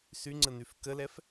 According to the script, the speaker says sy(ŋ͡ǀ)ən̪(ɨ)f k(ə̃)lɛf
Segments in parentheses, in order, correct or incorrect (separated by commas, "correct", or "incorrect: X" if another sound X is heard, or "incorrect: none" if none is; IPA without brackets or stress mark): correct, incorrect: y, incorrect: ə